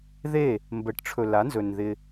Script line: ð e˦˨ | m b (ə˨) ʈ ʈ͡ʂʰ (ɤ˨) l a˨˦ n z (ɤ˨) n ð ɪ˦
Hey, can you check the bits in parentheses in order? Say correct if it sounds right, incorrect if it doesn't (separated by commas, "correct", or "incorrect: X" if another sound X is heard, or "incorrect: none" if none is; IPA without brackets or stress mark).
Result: correct, incorrect: ɵ˨, incorrect: ɵ˨